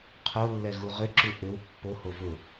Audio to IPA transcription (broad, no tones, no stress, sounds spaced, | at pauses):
qʰ o lː ɛ ɣ u ʁ ʏ ǁ u ʔ ʏ w pː o h o v ʊ